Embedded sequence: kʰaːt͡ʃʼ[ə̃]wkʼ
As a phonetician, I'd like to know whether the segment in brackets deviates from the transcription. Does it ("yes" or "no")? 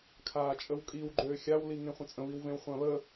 yes